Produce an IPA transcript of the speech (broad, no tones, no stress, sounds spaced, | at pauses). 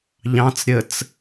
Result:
ʎ ɑ̃ t͡s ɾʲ ə t͡s